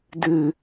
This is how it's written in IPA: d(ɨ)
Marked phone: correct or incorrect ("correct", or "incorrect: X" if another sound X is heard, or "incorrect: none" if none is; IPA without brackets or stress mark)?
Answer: correct